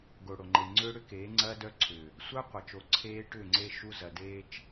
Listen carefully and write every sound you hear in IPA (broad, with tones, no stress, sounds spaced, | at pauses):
ɡ o˨ ɽ o˨ ŋ͡ǃ e˨ ŋ͡ǀ ʏː˦ ɽ ʏ˦ k eː˨˦ ŋ͡ǀ ɐː˦ d œ˦ ǀʰ ʏː˨ | sʷ œ˦ qʷ ɐ˨ t͡ʃ o˨ ǀʰ eː˦ ʈ ʏː˦˨ ŋ͡ǀ e˦ ʃ u˦ z ɐ˨ d eː˦ t͡ʃ